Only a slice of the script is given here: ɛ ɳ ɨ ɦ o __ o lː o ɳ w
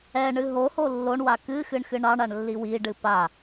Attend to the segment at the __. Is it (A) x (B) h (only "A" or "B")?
B